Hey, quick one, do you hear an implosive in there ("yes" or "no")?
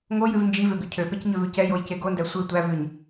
no